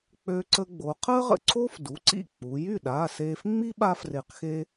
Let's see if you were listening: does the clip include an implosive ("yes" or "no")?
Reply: yes